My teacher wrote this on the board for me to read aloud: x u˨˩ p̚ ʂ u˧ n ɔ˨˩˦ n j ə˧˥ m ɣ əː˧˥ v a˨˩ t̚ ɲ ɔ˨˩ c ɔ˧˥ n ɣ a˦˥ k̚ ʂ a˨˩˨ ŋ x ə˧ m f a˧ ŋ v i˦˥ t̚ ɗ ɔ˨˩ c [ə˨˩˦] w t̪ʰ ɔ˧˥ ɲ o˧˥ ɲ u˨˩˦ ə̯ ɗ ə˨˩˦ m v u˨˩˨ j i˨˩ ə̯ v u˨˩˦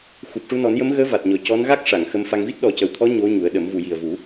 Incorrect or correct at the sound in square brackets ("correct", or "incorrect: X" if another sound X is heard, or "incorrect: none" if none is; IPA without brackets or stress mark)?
incorrect: ə˨˩